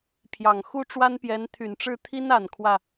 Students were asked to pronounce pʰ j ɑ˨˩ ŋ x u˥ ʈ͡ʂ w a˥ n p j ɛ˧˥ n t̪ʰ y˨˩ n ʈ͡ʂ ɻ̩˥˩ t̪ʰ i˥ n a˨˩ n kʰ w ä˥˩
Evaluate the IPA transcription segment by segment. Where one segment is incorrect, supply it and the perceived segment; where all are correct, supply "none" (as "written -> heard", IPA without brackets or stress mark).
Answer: none